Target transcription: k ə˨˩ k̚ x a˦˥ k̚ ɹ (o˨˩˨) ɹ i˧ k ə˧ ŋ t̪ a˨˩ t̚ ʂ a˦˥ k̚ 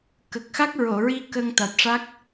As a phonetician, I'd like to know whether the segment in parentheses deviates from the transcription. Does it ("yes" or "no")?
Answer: no